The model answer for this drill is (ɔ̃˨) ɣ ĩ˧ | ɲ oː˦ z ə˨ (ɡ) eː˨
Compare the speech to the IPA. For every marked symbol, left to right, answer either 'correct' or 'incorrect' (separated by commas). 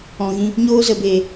correct, incorrect